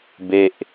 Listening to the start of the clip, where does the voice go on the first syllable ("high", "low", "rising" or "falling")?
falling